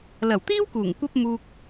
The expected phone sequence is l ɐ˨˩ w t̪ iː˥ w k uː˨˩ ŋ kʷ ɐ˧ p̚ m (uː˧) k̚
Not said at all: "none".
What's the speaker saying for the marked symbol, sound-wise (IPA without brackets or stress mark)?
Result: uː˨